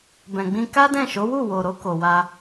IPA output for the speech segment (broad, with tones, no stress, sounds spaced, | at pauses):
b ɛ̃˨ ɡ͡b ĩ˧ k a˦ d ɛ̃˦˨ ʃ o˨˦ w u˦˨ w o˨ ɾ o˧ k o˨ w a˧